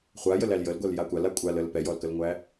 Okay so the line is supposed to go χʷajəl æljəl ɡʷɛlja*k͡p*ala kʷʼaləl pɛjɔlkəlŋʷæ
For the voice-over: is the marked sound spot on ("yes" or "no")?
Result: no